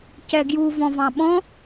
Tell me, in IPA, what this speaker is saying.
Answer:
c ɛ ɡ j u v ɔ̃ v ɑ̃ ɓ ɔ̃

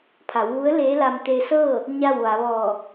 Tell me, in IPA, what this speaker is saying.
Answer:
pʰ a˩˧ w ʋ u˧˥ ə̯ l eː˧˥ l a˧ m t̪ e˧ s ɤː˥˨ | ɲ a˥˨ w ʋ a˩˧ ʋ ɔː˧˩

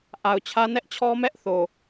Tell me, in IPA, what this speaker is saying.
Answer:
ʔ a˨ ʊ̯ t͡ɕʰ ä˦ n ɛ˦ ʔ t͡ɕʰ ɔ˦ m ɛ˦ ʔ θ o˨

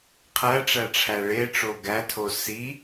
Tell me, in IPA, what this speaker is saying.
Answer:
qʰ æ ʈ͡ʂ æ ʈ͡ʂʰ æ ɭ e ʈ͡ʂ o ɡ æ tʰ o s i

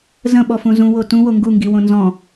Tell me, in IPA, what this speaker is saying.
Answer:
z ə̃ ɓ ɔ f ũ z ũ w o t ũ w o ŋ ɡ u ŋ ɡ i w õ n z ɔ̃

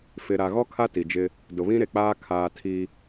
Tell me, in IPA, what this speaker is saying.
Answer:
f ɪ˨ ɾ a˨ ɣ ɔ˦ kʰ a˦ t i˨ d͡ʒ ɪ˦ | d ʊ˨ β ĩ˦ ɾ e˨ k͡p aː˦ kʰ aː˨ tʰ i˦

